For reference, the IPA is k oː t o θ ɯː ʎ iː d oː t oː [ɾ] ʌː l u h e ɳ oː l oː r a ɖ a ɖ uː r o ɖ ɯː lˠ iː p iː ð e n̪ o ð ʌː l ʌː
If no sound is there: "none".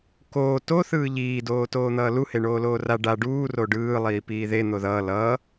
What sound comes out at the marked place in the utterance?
n̪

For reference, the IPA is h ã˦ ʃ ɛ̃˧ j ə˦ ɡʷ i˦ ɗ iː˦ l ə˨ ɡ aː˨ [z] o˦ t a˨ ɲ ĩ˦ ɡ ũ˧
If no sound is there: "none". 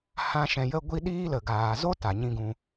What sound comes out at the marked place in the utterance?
z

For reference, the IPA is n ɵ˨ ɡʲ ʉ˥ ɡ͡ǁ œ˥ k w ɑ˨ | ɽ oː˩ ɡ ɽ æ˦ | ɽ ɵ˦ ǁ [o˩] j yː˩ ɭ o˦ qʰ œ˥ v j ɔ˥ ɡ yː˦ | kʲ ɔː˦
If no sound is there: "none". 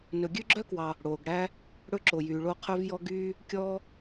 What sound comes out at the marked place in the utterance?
o˩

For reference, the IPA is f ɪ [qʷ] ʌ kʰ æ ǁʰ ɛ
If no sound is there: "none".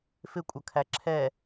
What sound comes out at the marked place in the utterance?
kʷʼ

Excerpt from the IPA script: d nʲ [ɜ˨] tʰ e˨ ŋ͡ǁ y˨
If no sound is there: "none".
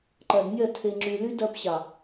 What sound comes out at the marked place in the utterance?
ɜ˦˨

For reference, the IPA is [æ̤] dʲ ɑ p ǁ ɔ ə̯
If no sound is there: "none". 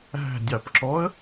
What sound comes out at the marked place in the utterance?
æ̤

